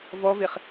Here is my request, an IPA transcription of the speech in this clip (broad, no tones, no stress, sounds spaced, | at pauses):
v ɔ v e χ